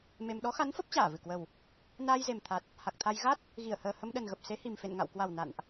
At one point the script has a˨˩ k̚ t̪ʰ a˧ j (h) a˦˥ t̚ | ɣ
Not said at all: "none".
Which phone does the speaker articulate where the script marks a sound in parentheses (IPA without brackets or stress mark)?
ɣ